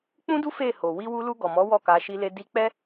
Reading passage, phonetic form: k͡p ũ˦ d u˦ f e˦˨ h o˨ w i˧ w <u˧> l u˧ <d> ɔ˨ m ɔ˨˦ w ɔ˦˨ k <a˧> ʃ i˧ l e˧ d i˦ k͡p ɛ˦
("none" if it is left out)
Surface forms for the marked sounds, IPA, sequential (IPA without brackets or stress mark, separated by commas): u˧, ɡ, a˧